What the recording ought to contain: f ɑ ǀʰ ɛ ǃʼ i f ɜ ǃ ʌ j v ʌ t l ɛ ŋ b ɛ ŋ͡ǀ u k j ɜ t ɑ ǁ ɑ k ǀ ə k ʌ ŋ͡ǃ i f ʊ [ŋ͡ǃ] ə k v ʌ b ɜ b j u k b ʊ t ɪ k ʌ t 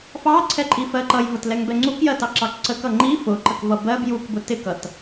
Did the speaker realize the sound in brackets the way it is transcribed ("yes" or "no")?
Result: no